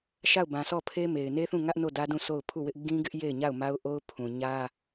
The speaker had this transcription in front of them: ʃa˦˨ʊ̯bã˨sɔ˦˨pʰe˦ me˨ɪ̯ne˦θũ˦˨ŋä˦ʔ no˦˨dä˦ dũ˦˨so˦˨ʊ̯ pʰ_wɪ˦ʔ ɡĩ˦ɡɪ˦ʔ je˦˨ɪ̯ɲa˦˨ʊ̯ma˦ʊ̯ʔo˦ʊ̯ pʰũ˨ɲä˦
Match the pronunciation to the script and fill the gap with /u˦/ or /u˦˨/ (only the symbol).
u˦˨